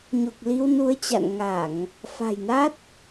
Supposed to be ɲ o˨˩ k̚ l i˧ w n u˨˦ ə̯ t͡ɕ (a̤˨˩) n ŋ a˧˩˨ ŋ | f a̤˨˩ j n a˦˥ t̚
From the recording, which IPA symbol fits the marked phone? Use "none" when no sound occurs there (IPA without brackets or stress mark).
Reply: a̰˧˨